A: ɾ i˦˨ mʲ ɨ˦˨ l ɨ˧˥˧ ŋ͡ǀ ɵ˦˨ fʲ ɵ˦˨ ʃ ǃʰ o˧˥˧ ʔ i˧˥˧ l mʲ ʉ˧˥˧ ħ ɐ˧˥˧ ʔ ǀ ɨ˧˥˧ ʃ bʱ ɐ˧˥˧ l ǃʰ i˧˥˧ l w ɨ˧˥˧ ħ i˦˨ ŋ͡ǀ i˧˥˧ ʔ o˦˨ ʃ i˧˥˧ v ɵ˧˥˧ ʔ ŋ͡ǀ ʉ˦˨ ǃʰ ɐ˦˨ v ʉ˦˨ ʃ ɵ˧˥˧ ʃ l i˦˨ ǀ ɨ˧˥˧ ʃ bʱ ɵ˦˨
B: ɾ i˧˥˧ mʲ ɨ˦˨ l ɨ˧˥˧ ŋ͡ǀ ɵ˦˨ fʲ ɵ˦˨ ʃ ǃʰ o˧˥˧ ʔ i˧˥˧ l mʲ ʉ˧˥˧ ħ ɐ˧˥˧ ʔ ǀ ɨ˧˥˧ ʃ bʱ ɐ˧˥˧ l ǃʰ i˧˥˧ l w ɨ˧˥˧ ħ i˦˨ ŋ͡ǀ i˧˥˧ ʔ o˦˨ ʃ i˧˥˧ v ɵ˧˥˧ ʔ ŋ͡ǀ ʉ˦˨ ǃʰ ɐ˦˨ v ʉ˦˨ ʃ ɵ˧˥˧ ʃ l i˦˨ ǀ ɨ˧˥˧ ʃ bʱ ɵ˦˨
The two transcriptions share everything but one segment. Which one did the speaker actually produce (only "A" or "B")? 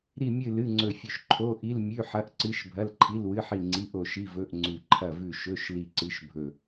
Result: A